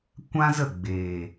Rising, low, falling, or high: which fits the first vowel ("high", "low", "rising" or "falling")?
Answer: high